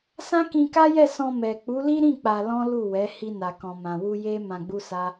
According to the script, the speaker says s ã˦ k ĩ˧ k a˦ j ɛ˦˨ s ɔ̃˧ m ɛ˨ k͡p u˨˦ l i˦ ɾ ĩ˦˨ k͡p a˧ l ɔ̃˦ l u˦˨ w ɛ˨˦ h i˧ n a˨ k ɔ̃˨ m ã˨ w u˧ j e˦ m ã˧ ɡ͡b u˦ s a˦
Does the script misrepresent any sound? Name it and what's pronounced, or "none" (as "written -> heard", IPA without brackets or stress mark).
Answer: none